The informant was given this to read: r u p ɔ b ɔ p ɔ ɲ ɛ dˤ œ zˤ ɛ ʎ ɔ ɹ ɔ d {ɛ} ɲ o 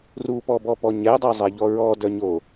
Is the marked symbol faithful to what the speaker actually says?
no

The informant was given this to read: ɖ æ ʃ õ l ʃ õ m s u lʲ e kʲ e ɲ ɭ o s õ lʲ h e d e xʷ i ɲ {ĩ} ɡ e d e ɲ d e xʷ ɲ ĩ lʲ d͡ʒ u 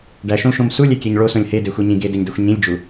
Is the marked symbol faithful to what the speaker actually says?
yes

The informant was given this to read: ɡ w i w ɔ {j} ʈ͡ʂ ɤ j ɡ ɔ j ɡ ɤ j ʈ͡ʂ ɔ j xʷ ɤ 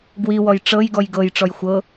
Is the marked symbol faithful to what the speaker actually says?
yes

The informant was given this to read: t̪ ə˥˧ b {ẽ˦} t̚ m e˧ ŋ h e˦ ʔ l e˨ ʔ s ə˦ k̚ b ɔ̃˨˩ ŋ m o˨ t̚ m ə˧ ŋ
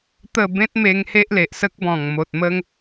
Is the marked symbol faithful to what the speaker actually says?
yes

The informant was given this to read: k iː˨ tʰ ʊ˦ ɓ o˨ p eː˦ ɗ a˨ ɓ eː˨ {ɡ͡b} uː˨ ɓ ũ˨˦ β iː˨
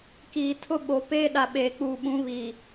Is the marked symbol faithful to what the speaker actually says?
no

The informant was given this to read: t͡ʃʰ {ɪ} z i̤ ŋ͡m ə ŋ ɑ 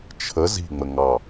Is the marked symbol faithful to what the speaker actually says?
no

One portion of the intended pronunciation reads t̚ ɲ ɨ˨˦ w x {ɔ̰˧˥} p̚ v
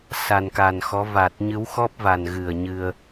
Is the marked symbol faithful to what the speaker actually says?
no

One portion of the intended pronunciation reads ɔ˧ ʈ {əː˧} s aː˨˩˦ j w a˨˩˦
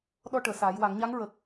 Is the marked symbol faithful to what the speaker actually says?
no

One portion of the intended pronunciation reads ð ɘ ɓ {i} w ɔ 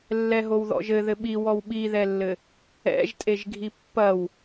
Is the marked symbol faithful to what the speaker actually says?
yes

